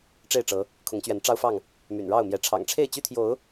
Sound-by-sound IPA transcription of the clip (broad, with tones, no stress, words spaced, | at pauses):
ʈ͡ʂe˥˨ɪ̯ʈ͡ʂɤ˨˦ | kʰʊ˨˦ŋt͡ɕɥɛ˨˦n ʈ͡ʂɑ˦ʊ̯fɑ˥˨ŋ | my̰˨˩nɻɑ˥˨ʊ̯mjɛ˨˦ ʈ͡ʂʰɑ̰˨˩ŋʈ͡ʂʰe˥˨ɪ̯t͡ɕy˦t̪ʰjo˨˦ʊ̯